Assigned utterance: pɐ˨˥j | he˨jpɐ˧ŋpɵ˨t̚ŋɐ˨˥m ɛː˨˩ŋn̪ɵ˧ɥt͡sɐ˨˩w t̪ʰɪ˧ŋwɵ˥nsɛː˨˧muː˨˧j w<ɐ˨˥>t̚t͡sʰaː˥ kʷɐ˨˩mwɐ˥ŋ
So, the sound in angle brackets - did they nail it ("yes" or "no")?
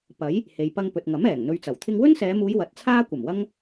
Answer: yes